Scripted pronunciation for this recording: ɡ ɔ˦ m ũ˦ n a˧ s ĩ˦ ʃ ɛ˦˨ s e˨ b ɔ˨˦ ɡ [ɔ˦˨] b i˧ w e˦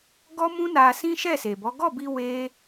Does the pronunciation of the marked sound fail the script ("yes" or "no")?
no